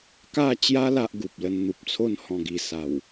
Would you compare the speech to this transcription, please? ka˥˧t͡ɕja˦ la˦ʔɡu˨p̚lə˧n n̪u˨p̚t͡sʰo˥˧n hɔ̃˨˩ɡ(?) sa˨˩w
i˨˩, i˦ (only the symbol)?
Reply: i˨˩